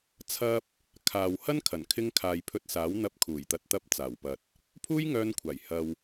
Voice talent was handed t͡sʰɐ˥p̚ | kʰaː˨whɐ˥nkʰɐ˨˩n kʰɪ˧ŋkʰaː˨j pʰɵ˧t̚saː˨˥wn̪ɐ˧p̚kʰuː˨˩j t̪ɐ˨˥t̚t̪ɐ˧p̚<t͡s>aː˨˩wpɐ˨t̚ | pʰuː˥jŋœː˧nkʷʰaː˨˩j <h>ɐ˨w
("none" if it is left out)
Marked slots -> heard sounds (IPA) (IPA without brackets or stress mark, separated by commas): t͡s, h